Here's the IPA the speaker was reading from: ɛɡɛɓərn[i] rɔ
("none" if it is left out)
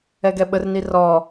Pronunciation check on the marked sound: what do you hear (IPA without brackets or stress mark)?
i